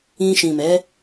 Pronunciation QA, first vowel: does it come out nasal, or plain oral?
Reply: nasal